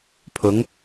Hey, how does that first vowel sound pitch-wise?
rising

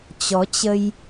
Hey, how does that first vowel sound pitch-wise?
rising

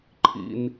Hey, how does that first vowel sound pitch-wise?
low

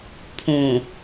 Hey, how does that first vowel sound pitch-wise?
low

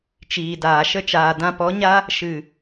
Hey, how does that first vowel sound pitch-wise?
low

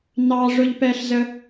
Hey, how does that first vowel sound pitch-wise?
high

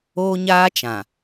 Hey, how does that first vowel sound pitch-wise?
high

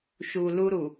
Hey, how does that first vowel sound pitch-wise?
low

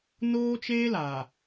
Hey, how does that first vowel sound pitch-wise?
high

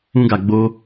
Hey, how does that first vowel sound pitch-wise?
high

